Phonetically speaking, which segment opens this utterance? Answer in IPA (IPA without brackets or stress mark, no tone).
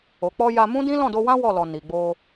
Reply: o